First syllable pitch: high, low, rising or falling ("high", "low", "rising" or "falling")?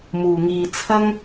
low